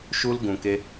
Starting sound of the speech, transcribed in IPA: ʃ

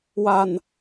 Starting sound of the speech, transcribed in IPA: w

